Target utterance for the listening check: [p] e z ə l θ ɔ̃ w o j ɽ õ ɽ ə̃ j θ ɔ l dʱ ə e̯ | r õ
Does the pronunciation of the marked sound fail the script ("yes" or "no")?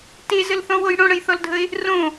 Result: yes